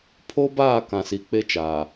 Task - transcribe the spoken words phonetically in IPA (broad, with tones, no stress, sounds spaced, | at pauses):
pʰ o˦ b aː˦˨ k ã˨ s i˨ k͡p e˦ t͡ʃ aː˨